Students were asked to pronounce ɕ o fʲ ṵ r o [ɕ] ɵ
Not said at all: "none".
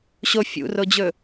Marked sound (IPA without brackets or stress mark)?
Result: d͡ʑ